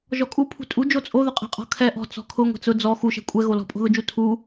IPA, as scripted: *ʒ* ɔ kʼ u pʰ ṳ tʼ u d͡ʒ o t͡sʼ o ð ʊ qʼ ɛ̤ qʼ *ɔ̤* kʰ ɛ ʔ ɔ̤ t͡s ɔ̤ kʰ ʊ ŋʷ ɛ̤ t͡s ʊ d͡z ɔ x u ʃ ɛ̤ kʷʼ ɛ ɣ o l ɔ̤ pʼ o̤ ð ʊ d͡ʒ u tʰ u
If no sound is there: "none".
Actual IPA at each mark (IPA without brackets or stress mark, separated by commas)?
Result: ʒ, ɔ̤